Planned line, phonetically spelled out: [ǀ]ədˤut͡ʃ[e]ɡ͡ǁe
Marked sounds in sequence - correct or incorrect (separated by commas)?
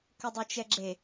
incorrect, incorrect